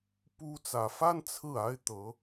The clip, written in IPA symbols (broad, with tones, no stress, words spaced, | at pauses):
pu˥ t͡sä˨˩fa˥n t͡sʰɹ̩˥˩a˥ɪ̯t̪ɤ˧˥